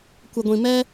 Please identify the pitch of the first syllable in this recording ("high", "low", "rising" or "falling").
low